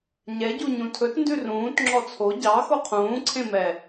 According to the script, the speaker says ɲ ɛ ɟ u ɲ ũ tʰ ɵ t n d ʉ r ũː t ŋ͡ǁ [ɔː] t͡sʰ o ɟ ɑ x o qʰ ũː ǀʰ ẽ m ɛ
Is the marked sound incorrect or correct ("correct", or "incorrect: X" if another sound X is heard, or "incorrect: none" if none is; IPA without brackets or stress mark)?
incorrect: ɔ